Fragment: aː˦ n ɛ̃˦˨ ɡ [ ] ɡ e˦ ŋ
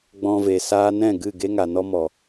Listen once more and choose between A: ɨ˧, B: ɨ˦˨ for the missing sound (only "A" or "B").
B